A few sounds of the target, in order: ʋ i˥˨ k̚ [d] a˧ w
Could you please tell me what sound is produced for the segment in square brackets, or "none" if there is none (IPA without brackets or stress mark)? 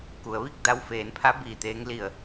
d